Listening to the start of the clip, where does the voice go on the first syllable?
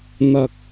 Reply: high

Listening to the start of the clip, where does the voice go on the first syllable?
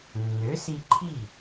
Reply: rising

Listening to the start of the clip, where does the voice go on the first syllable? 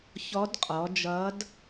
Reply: rising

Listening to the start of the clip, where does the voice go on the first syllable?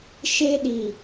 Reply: high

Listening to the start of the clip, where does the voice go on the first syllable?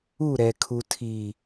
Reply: falling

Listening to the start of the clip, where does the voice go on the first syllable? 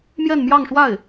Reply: falling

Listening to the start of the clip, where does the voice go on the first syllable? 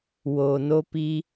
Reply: low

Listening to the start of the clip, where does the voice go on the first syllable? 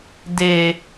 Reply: low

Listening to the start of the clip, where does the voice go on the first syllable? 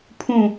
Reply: falling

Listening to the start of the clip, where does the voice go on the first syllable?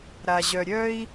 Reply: low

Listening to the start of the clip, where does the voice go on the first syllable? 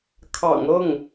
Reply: low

